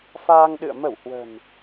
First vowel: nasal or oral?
oral